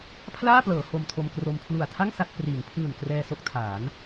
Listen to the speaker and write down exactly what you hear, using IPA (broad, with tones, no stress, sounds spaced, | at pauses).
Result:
pʰ l aː˥˩ p l ɤː˩˦ h o˧ m tʰ o˧ m k r o˧ m pʰ l u˨˩ a̯ tʰ a˥˩ ŋ s a˥˩ t̚ p r iː˩˦ ŋ pʰ ɯː˨˩ n k r ɛː˧ s o˦˥ k̚ tʰ aː˩˦ n